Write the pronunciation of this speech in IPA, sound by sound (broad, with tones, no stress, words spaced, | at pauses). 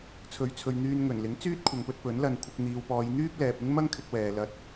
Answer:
t͡sʰɵ˨˥ɥt͡sʰɵ˨ɥ n̪yː˧nŋɵ˨˩n lɪ˨˥ŋ t͡syː˥t̚kʷʰɐ˨ŋpɵ˧t̚ pɵ˨˥nlɐ˧n kʷʰɪ˧k̚ n̪iː˨wpɔː˨˧j n̪yː˥p̚lɛː˨p̚ ɪ˥ŋmɐ˥ŋkʰɪ˧k̚ wɛː˨lɐ˧t̚